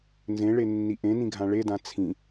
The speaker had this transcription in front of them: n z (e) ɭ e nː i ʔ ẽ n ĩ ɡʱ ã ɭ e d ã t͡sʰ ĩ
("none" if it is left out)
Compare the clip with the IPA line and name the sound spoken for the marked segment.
ẽ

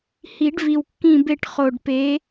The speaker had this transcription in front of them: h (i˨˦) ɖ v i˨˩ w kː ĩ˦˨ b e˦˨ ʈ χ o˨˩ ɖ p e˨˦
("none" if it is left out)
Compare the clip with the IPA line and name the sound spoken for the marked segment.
i˨˩˦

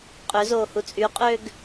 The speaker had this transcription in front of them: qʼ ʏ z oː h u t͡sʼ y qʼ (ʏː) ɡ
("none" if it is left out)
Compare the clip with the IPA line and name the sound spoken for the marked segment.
ʏː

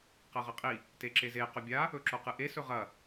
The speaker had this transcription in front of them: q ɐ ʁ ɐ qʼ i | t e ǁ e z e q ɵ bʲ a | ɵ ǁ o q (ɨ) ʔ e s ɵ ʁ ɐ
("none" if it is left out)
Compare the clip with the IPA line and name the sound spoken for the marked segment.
ɨ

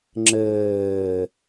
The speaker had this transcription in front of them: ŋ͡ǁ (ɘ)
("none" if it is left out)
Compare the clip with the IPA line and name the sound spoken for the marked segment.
ɘː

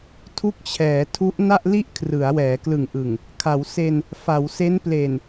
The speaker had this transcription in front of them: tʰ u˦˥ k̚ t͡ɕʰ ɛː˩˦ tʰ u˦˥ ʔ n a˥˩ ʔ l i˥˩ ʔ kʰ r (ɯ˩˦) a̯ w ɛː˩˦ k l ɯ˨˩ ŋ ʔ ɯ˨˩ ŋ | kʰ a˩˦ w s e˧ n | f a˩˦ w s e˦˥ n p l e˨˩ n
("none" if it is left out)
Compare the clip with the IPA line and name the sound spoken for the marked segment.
ɯ˩˦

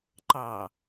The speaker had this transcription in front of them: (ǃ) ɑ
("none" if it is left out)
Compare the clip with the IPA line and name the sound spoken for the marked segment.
ǃ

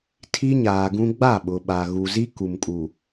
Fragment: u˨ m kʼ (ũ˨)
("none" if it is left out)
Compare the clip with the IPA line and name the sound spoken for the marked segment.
u˨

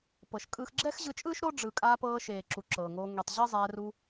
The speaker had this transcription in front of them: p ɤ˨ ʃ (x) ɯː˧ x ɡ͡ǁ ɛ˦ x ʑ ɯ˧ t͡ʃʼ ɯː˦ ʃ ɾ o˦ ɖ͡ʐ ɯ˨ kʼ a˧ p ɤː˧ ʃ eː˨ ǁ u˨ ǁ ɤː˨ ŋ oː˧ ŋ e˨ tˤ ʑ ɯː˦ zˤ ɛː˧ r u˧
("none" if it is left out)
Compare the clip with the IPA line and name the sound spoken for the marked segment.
kʼ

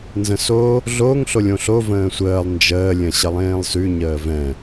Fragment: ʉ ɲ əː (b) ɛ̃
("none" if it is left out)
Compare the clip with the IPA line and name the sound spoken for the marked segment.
v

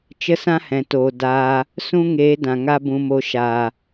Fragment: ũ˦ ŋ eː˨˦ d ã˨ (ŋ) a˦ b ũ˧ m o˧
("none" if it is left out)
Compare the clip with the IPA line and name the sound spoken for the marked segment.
ŋ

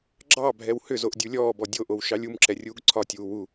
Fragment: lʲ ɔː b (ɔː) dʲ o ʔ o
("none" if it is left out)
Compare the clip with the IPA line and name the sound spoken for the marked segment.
ɔ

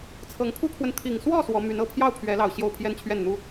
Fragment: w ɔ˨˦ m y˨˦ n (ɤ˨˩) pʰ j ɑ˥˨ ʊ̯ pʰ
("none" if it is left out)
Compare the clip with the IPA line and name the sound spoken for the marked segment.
ɤ˨˩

